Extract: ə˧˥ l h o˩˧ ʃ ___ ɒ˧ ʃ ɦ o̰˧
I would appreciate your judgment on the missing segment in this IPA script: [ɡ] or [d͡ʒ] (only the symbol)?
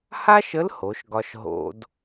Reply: ɡ